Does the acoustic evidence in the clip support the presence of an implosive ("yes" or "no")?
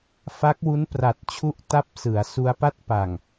no